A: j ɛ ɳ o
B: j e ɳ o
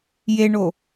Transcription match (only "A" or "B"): B